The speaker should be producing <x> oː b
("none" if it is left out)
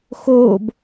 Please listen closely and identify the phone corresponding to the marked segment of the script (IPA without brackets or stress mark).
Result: x